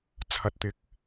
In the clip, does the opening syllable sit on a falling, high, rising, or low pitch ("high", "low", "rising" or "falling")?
low